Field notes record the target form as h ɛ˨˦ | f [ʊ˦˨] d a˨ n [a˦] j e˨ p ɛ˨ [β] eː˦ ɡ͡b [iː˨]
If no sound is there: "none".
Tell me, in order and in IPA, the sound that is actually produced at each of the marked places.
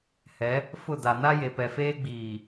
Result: ʊ˦˨, a˦, f, iː˨

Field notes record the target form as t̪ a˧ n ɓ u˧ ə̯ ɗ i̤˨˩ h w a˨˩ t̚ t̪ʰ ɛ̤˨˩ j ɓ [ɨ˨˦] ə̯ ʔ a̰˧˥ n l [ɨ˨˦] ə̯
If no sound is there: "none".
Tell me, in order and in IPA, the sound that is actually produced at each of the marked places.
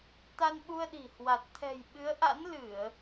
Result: ɨ˨˦, ɨ˧˩˨

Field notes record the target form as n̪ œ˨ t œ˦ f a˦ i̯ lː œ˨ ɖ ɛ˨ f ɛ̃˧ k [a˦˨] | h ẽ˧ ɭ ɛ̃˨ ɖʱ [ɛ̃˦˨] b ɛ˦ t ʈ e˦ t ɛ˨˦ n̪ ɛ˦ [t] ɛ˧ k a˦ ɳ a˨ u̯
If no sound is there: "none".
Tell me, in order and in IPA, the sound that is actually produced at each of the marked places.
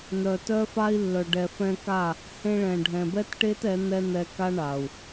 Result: a˦˨, ɛ̃˨, n̪

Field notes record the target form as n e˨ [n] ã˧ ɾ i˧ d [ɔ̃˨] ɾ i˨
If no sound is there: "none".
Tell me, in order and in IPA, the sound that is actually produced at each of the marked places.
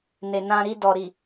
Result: n, ɔ˨

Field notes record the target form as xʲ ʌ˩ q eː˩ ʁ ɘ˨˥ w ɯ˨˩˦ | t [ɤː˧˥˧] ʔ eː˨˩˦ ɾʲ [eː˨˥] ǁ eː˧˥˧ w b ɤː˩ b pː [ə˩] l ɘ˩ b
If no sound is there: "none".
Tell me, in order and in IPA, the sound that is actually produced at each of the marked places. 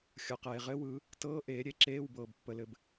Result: ɤː˧˥˧, e˨˥, ə˩

